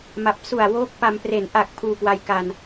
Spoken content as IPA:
m a˨˩ p̚ s u˨˩ a̯ w oː˦˥ k̚ p a˧ m p r e˩˦ n ʔ a˨˩ k̚ pʰ uː˧ k w a˧ j k a˧ n

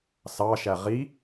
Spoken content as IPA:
s ɑ ʃ æ ʁ i

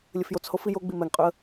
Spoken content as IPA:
lʲ ə f j o t͡s h o f i j o ɡ͡b i m ɛ ŋ qʼ ø ə̯

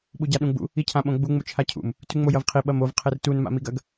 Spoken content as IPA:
ɓ u ɟ a ɗ ũ ɡ͡b ṵ | i cʰ ã ɓ õ ɡ͡b u ŋ͡m u t͡ʃʰ a cʰ ṵ m | t ʉ ŋ͡m o j ɐ v qʰ i ɓ ɐ m o v qʰ e r t u n m a̰ m i ɡ ɐ ɡ

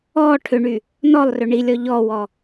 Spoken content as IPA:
ɔ ʈʰ ʏ ɳ y | n ɔ lˠ r ʏ ɳ i lʲ ɔ ʎ ɔ w ɔ

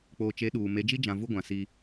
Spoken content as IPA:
k͡p oː˨ t͡ʃ e˨˦ ɗ uː˨ m e˨˦ d͡ʒ i˦ d͡ʒ ã˨ v u˦ ɡʷ ã˨ s i˦

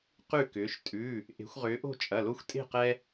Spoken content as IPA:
q ʉ˥˨ k ʏː˨˦ ʃ tʼ ʉ˩˧˩ | ʔ e̤˨˦ xʷ ʁ ʏː˨˦ ʔ o̤˥˨ t͡ʃʼ ɐ˩˧˩ l o˦ xʷ tʼ e̤˥˨ q ɛ˦

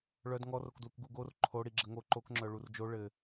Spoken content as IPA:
ɭ œ d ŋ ɔ r o k d l u k ɡ u ɡ o r ǃʰ o ɽ i ɡ͡ǁ ə ŋ o ǃ o k ŋ͡ǁ œ ɭ u r d͡ʒ o ɭ ɘ

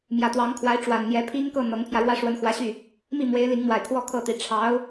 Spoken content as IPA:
m j ä˨˩ t̪ w ɑ˧˥ ŋ kʰ w a˧˥ ɪ̯ ʈ͡ʂ w a˨˩ n n̪ j ɛ˧˥ pʰ i˥ ŋ k ɤ˥˩ n̪ ɤ˧˥ ŋ pʰ j ä˧ ɻ w ä˥ ʂ w ə˧˥ n x w ä˧˥ ɕ y˥˩ | m i˥˩ m w e˧˥ ɪ̯ l i˧˥ ŋ m w a˨˩ ɪ̯ kʰ w ɔ˥ kʰ ɤ˥˩ t̪ i˧˥ ʈ͡ʂʰ ɑ˧˥ ʊ̯

